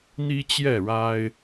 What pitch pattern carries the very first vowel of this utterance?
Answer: high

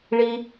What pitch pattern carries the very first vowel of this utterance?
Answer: low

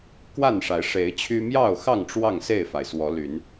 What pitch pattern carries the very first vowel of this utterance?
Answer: falling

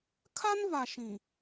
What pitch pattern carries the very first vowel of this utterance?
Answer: high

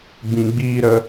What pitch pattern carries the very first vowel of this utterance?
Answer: low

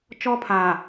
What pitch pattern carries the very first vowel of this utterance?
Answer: high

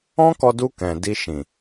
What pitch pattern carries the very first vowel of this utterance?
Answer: high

